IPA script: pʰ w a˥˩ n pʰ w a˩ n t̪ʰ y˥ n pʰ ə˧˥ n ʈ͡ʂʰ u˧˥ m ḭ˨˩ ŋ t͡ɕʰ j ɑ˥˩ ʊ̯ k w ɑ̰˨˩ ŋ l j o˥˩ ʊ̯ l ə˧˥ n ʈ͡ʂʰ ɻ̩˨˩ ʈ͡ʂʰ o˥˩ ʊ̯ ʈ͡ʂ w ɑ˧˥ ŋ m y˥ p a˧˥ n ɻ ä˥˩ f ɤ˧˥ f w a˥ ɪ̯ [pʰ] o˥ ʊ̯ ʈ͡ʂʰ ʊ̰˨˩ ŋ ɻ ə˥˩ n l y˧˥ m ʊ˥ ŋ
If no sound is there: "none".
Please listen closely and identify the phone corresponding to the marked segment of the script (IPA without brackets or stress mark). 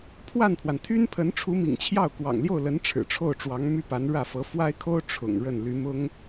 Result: kʰ